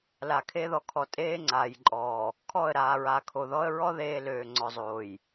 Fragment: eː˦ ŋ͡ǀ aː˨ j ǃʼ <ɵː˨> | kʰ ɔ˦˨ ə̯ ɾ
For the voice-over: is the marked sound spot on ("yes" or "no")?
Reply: no